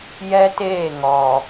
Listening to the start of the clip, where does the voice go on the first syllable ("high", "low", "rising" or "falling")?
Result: high